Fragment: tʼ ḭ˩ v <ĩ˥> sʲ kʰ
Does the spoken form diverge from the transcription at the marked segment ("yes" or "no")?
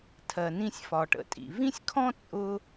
no